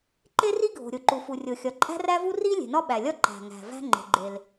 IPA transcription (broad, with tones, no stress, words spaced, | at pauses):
ǃe˥ri˥ɡʱo̤˩ ɾʲo˩ǃu˩ fu˩rʲo˩xʲɒ˩ ǃʼæ̤˥ræ˥vu˥ ri˥ lʲe̤˩nɒ˥ɓæ˩lʲɒ˥ ǃæ̤˩ŋæ̤˩ væ̤˥ŋ͡ǃe̤˩ɡ͡ǃe˩l